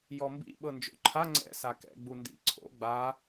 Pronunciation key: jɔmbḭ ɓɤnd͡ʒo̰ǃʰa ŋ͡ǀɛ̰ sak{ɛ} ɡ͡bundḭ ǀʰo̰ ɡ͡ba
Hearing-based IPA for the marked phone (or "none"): ɛ̰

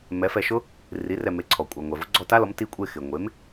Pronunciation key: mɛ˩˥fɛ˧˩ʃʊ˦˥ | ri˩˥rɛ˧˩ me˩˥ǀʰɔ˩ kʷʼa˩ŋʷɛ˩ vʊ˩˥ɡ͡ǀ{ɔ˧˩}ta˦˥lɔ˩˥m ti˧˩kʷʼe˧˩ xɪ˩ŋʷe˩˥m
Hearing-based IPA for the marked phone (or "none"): ɔ˧˩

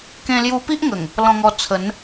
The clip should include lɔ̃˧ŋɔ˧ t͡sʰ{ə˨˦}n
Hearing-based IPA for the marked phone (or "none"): ə˨˦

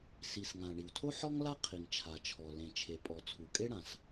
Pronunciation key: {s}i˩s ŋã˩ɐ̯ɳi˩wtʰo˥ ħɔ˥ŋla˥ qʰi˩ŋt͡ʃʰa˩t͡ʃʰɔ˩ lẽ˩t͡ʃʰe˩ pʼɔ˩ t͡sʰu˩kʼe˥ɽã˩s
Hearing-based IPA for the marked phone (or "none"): s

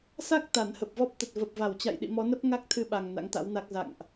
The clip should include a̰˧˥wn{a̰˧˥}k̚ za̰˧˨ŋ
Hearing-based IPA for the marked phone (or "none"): a˦˥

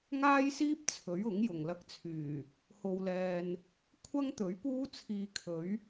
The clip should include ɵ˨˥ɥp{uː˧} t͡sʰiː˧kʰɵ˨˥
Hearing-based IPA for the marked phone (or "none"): uː˥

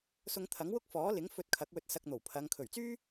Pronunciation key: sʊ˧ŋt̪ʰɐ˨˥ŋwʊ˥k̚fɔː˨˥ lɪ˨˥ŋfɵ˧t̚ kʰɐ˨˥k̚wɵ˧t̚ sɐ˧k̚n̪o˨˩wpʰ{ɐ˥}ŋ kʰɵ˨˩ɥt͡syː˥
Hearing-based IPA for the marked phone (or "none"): ɐ˨˧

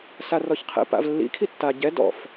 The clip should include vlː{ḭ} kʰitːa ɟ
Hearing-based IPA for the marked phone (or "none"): ḭ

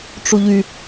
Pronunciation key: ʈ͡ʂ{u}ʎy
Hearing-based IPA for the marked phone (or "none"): u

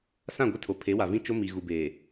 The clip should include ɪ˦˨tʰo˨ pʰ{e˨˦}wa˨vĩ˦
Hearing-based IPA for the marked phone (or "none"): e˨˦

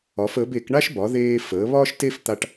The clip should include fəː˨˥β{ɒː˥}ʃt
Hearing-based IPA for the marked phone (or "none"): ɒː˥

